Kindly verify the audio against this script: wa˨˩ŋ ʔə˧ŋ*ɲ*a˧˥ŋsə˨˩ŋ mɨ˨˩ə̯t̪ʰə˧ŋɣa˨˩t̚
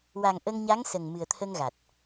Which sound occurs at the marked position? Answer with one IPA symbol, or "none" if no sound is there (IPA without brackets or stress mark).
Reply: ɲ